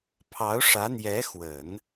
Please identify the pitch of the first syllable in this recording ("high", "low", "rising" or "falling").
rising